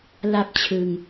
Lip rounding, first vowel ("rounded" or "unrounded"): unrounded